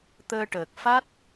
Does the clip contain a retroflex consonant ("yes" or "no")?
yes